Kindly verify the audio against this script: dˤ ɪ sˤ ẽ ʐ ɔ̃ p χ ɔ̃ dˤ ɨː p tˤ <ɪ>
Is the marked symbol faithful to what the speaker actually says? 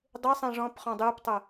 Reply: no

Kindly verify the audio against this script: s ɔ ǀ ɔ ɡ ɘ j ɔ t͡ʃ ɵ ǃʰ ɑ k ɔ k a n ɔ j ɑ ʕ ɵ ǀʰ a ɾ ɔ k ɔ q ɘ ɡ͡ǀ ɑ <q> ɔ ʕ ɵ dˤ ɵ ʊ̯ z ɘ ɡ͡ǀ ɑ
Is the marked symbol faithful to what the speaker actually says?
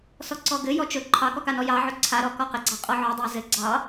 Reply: no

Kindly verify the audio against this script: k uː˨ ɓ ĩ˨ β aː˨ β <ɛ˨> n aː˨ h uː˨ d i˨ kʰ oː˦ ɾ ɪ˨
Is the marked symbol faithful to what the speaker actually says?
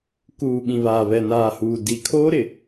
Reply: yes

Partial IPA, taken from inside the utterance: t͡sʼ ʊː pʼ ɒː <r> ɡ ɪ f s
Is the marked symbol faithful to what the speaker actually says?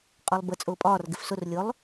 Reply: yes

